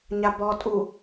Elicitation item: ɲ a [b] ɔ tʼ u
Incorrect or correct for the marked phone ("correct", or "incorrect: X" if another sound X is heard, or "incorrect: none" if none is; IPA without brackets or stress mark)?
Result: correct